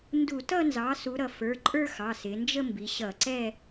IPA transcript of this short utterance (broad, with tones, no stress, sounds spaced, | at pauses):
n d u˧˩˧ t ʌ˥˧ n z ɑ˩˥ s u˩˧ ɾ ʌ˩˧ f ə˞˩˧˩ ǃʼ ə˞˥˧ x ɑ˩˧˩ s ɪ˩˧ n d͡ʒ ə˥˧ m b i˩˧ ɕ ʌ˧˩˧ ǀ ɛ˥˧